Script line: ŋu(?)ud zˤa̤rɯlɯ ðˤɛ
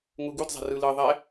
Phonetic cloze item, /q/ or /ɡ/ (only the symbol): ɡ